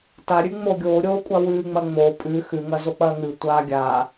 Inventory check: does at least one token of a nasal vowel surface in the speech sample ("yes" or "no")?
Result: no